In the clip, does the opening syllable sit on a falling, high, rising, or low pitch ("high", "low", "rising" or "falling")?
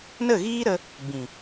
falling